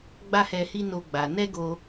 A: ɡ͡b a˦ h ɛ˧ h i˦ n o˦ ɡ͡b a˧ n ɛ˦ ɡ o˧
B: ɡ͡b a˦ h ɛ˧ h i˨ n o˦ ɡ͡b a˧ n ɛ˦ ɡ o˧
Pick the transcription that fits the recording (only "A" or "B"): A